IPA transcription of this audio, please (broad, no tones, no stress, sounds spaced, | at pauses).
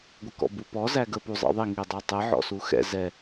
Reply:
ɡʷ ɪ k ɔ̰ b u p ɔ z æ ɡ ə p u zˤ ɛ̰ ðˤ i ŋ i dˤ ɛ tˤ ɪ ʕ ɔ̰ s u x ɛ̰ z ɛ